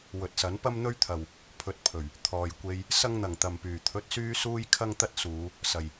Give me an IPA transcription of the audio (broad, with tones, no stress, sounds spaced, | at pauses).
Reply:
w ɵ˨ t̚ s ɐ˨˥ n p ɐ˥ m n̪ ɵ˥ ɥ t̪ʰ ɐ˨ w | pʰ ɵ˨˥ t̚ pʰ ɵ˨˩ ɥ | t̪ʰ ɔː˨ j kʷ e˧ j | s ɐ˥ ŋ n̪ ɐ˨˩ ŋ t̪ ɐ˨ m p yː˨˩ t̪ʰ ɵ˨˥ t̚ s yː˧ s uː˧ j kʰ ɐ˥ ŋ t̪ ɐ˥ t̚ s uː˨˧ | s ɐ˨ j